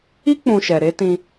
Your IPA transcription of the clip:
i˦ k͡p ũ˧ ʃ ɛ˨ ɾ e˨˦ t ĩ˧

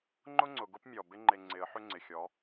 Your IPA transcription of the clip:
ŋ͡ǃ ʊ˦ ŋ͡ǀ ʊ˨ ɡ ʊ˦ p mʲ ɔ˨ b ɪ˦ ŋ͡ǃ e˨ ŋ͡ǀ ɪ˨˦ ə̯ ħ ʏ˦ ŋ͡ǀ ɪ˨ xʲ ɔ˨˦

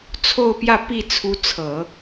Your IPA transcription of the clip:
t͡sʰ o˥˧ ʊ̯ p j ä˥˧ p i˥˩ t͡sʰ u˧˥ t͡sʰ ɤ˨˩˦

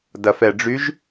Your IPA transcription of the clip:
d ɐ f ɛ ɖ͡ʐ y ʒ

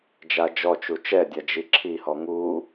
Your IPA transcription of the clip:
d͡ʒ a d͡ʒ ɔ t͡ʃ u t͡ʃ ɛ dʲ a d͡ʒ i ǁʰ i h ɔ ŋ u

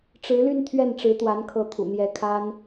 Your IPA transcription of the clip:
ʈ͡ʂ ɻ̩˧˥ l y˥˧ n t̪ʰ ɥ ɛ˥˩ n ʈ͡ʂ ɻ̩˧˥ t̪ w a˧˥ n kʰ ɤ˧˥ t̪ʰ ṵ˨˩ n̪ j ɛ˧˥ kʰ a˥ n

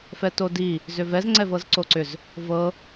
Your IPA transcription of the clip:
f ɛ t o d i | z ʏ v ɛ z ŋ͡ǀ ɛ v ɤ z ǀ o ǀ ʏ z | v ɤ

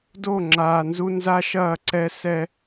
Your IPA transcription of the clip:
d o˦˨ ŋ͡ǁ aː˨ n z u˦ n z a˦ ʃ ɐː˦˨ ǀ ɛ˦ s ɛ˦

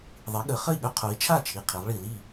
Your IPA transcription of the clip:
ðˤ i˩˧ ɠ ə˩˧ χ ə˥˩ i̯ ɠ œ˦˥ qʰ o˩˧ i̯ t͡ʃʰ a˥˩ t͡ʃʰ i˨˩ qʰ i˩˧ lˠ ɭ i˨˩ l i˥˩

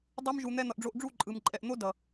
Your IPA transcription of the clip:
dˤ u˦ m ʒ u˧ n̪ ɛ˧ n̪ ʌ˨ ʔ ɖ͡ʐ o˧ ʔ ɖ͡ʐ u˦˨ ǃʼ ɯ˨ m ǃʼ ɛ˨ ʔ n̪ o˦ d ʌ˨

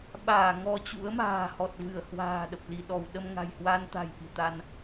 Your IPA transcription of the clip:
ɓ aː˧˩ ŋ ɔ˧ t͡ɕ ṵ˧˥ ə̯ m a̤ː˨˩ h ɔ˨˩ t̚ v ɨ˧˩ ə̯ h w a̤ː˨˩ ɗ ə˨˩ p̚ l i˧˩ ɗ ɔ˧˩ w ɗ ə˧ m ŋ a̤˨˩ j h w a˧ n t̪ a̤˨˩ j ʔ i̤˨˩ t̪ a˧ n

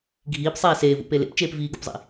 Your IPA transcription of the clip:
ɡʱ iː p sˤ eː s eː v ṵ p e l ḛ p t͡ʃ eː p v iː ɡ ṵ p zˤ ḭ

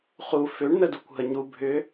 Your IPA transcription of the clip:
χ u f ʏ ɳ n ə d u kʷ ɦ ə ɲ u bʱ ʏ

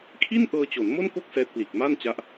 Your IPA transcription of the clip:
kʰ i˥˩ n ʔ ɤː˧ t͡ɕ o˩˦ n m o˥˩ n k o˥˩ k̚ s ɛː˦˥ t̚ p l iː˨˩ k̚ m a˥˩ n t͡ɕ a˦˥ ʔ

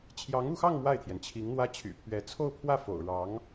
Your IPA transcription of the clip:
t͡ɕʰ j ɑ˧˥ ŋ u˥˧ x ɑ˥˧ ŋ m w a˥˩ ɪ̯ t̪ʰ j ɛ˩ n t͡ɕʰ i˧˥ ŋ n̪ w ä˥ t͡ɕʰ y̰˨˩ pʰ ɥ ɛ˧˥ t͡sʰ o˥˧ ʊ̯ pʰ w ä˥˩ f o̰˨˩ ʊ̯ ɻ ɑ˧˥ ŋ

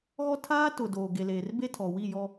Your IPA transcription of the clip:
ɣ ɔ˦ tʰ aː˦ t ʊ˨ d oː˨ ɡ e˨ l eː˨ r b e˦ tʰ ɔ˨ w i˦˨ j ɔ˦

